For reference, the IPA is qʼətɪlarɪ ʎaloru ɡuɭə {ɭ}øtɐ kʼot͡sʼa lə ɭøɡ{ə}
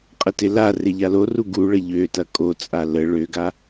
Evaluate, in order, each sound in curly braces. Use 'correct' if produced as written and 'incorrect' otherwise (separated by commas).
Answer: incorrect, incorrect